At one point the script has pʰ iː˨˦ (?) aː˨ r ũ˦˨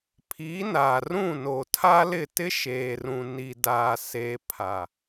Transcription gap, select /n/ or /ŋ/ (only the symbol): n